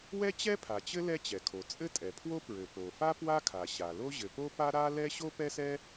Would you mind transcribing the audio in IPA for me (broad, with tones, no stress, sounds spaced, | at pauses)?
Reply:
w ɛ˥ t͡ɕ ɛ˥ pʰ a˩ t͡ɕ ɘ˥ l ɛ˥ t͡ɕ ɛ˩ kʰ o˩ t͡sʼ ɘ˥ tʼ ɛ˩ pʰ w o˥ p ɹ ɘ˩ p o˩ f a˥ p w a˥ kʰ a˩ ɕ a˩ l o˥ ʑ ɘ˩ p o˥ p a˥ ɾ a˥ l ɛ˥ ɕ o˥ p ɛ˥ s ɛ˥